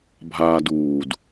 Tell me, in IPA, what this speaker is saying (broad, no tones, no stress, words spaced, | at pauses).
bʱaːduːd